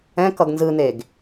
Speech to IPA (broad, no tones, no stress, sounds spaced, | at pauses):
ɛ̃ k ʌ ɡ n z ɯ n̪ e ɡ